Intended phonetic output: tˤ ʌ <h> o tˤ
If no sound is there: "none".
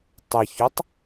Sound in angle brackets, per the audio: ç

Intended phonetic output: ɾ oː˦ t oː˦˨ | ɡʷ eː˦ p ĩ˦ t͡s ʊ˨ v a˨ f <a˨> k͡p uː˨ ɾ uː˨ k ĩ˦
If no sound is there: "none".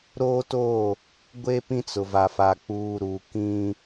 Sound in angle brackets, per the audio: a˨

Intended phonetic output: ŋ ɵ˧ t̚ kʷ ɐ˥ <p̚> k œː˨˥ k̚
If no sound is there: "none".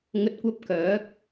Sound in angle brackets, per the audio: p̚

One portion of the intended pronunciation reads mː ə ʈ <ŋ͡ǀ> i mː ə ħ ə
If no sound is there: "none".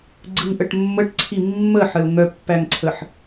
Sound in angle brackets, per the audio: ǀʰ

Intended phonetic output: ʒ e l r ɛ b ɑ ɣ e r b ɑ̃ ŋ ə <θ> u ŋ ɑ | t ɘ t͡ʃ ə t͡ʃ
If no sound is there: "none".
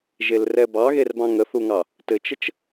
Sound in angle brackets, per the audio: θ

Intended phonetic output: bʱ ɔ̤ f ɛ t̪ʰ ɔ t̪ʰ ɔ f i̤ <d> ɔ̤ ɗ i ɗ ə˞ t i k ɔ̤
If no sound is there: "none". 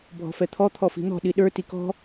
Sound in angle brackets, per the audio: n̪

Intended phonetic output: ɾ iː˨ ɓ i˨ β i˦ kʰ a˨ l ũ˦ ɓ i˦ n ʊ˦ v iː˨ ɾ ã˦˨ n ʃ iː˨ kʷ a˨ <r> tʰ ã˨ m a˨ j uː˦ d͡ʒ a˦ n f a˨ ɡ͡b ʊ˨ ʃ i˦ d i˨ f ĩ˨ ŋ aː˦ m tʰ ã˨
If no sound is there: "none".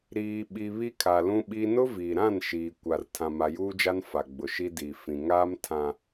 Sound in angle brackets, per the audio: r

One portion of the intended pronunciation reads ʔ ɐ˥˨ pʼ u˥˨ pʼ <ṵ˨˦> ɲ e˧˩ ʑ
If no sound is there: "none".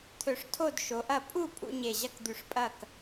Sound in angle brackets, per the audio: ṵ˨˦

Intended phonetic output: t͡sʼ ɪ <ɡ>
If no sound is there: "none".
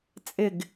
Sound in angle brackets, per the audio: ɡ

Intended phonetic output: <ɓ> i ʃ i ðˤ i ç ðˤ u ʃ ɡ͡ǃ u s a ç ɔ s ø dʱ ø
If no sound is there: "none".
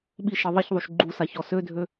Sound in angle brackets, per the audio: ɓ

